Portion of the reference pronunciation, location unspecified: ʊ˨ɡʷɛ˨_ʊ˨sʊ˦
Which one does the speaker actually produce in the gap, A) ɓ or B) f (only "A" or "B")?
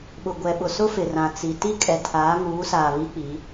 A